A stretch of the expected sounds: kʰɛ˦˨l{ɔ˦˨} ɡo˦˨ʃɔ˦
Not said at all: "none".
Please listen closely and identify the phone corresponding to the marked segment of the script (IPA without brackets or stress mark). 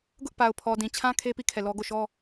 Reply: ɔ˦